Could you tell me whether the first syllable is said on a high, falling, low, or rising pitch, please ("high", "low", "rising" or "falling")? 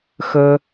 high